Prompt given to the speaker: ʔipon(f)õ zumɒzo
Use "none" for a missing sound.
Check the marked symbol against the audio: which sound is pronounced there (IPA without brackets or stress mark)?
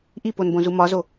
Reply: b